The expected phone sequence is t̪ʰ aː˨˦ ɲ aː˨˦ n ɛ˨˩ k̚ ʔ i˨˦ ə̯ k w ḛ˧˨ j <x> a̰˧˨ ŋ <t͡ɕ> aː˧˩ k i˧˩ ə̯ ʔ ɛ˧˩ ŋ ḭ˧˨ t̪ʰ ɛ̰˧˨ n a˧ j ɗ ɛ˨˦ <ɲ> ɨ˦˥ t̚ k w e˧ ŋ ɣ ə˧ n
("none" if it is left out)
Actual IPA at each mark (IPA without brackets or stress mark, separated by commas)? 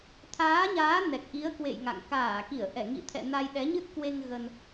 ŋ, k, ɲ